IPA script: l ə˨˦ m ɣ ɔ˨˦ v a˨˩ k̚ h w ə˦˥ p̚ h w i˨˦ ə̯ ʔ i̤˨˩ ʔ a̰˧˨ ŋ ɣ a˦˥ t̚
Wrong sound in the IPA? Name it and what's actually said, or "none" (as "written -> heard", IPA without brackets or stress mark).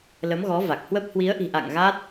none